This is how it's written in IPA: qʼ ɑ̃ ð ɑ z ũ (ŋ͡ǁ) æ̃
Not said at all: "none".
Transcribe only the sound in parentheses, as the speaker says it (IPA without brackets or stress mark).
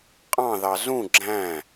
ɡ͡ǁ